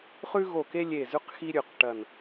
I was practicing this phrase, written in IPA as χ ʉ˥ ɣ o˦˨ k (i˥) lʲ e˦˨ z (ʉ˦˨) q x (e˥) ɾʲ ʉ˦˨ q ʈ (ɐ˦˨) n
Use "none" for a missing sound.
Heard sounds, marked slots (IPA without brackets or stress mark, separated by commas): e˥, ʉ˥, i˥, ɐ˦˨